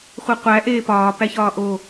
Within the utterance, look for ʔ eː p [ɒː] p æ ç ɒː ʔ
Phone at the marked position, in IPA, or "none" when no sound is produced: ɒː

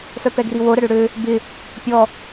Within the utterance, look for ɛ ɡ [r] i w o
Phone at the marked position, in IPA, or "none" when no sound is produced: r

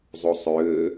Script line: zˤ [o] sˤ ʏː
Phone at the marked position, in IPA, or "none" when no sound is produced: o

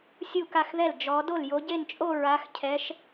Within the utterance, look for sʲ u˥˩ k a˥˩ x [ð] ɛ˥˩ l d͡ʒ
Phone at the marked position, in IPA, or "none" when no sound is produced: ð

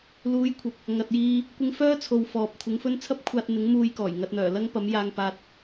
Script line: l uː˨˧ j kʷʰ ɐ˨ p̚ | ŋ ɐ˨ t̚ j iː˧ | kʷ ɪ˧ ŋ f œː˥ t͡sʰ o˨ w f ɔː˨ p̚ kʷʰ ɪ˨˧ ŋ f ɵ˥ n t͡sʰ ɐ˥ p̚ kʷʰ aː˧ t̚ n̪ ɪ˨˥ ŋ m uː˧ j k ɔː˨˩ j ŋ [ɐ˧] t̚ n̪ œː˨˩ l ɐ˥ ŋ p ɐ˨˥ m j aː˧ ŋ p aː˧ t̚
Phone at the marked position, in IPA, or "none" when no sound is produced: ɐ˧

